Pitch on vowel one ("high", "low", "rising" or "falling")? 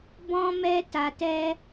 high